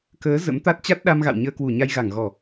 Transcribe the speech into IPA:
k əː˨˦ z ə̰˧˥ m t̪ a˦˥ t̚ t͡ɕ a˦˥ t̚ ɗ a˧ m ɣ a̰˧˨ w ɲ əː˧ k w u˧˩ ɲ a˧ j ɣ a˧˩ ŋ ɣ ɔ˧˩˨

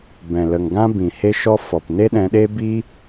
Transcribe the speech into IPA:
b ɛ̃˨ l ə˨ ŋ ɡ ã˦ b ĩ˨ h e˦ ʃ ɔ˦ f ɔ˨ p n e˦ ɗ ɛ̃˧ ɗ e˦ b i˦

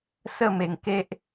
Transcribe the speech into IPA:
s ə˥˧ m e˨˩ ŋ k e˦ ʔ

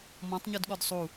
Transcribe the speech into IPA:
m ɔ̃ tˤ ɲ u d ɠ ɔ d sˤ u

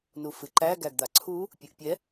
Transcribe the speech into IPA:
n u f ɨ ǃ æ ɡ æ ɡ d̪ a ǀʰ u | pʲ ɨ ʔ pʲ ɛ

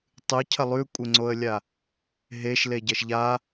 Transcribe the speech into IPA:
tˤ ɨ cʰ ɐ lˠ ʉ kʷʼ e ŋ͡ǀ o ə̯ lʲ a | ɦ e ʃ l e ɟ ɐ ʃ ʎ a

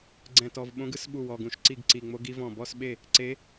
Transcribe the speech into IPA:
ɡ͡ǀ ɛ̃˧˩ t ɔ˧˩ v ɓ õ˧˥ ɡ ɯ˧˥ s ɓ u˥˩ w ɔ˧˩ ɡ ũ˧˩ ʃ ǀ i˥˩ ɡ ǀ i˧˩ ŋ͡m o˧˥ ɡ i˧˥ v ɔ̃˧˩ b ɔ˥˩ s ɓ e˥˩ | ǀ e˧˥

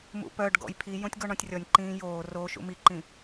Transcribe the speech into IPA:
m ṵ p œ ɖ ɡ ɔ̰ j pʰ i j õ tʲ ɡ ɔ ɳ ɔ̃ tʲ rʲ ɔ nʲ ǃ ĩː j oː r o ʃ ṵ m i ǃ ĩ

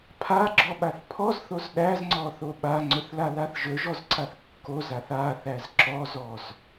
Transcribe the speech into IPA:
pʰ a ɡ͡ǁ ɔ ɓ a θ pʰ ɔ z θ o z ɗ æ z ŋ͡ǀ ɔ θ o ɓ a ŋ͡ǀ ɵ θ l a l a θ ʒ ɵ ʒ ɔ z ǀ a θ kː o z a θ a θ æ z ǁ ɔ z ɔ z

